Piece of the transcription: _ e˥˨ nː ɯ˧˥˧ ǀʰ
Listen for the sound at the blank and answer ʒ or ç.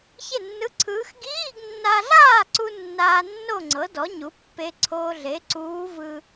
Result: ç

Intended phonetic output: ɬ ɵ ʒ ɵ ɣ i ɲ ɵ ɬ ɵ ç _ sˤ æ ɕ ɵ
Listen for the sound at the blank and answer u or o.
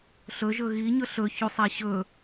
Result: u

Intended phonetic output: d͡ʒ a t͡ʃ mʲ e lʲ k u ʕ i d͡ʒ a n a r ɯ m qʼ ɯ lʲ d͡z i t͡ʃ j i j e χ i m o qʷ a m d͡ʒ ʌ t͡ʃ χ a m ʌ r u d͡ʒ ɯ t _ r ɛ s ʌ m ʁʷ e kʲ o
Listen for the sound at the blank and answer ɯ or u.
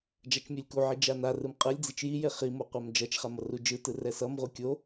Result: ɯ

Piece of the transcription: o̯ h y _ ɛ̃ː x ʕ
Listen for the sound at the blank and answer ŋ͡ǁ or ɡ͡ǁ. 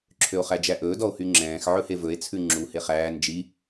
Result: ŋ͡ǁ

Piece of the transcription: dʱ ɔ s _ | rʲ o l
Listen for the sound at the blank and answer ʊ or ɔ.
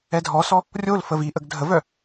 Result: ɔ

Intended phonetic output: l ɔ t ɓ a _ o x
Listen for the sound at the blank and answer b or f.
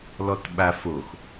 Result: f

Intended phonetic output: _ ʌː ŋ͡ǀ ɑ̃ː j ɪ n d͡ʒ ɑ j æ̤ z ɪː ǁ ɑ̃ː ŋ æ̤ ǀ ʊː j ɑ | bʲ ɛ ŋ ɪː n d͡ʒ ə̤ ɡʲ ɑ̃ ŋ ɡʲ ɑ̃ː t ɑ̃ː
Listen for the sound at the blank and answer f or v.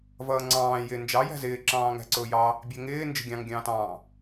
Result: v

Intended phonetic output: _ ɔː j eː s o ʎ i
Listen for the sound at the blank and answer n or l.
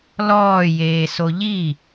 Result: l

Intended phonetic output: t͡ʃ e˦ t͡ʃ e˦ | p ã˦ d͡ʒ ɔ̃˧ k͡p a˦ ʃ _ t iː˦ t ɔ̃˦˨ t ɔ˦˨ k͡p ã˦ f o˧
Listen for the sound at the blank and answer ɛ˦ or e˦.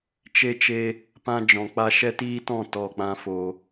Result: ɛ˦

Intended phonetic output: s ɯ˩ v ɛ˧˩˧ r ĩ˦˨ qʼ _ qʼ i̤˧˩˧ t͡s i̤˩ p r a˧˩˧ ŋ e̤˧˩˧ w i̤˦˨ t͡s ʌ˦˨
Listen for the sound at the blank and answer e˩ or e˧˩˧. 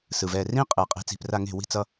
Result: e˩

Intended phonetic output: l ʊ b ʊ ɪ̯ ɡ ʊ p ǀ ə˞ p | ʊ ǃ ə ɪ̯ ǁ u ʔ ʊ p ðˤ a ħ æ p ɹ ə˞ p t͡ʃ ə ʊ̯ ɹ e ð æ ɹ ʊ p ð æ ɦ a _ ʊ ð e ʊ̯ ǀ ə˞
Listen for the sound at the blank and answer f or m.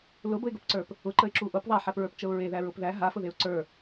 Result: f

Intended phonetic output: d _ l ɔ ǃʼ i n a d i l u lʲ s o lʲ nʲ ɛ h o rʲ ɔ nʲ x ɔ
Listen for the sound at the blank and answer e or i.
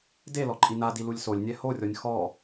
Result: e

